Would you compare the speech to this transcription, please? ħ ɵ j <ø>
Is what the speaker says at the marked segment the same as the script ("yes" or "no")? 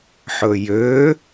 yes